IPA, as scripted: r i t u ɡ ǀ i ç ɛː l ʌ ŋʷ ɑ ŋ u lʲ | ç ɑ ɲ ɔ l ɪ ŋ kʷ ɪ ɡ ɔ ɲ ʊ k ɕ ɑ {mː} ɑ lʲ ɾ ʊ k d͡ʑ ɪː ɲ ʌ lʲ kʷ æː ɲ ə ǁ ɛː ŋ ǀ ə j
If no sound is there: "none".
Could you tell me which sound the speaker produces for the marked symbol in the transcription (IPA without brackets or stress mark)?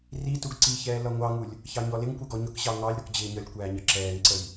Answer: ŋ